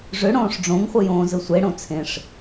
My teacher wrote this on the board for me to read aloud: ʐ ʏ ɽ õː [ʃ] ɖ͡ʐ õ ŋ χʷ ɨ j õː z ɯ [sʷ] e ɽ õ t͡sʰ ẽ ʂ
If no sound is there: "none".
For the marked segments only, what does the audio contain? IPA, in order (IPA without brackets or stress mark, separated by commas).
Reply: ʂ, sʷ